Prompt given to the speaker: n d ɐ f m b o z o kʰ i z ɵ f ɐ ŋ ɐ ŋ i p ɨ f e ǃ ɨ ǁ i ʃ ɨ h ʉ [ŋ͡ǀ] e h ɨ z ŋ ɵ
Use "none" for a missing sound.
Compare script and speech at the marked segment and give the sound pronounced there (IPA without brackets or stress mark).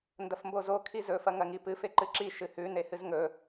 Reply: n